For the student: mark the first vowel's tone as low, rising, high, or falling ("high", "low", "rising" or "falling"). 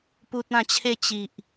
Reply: high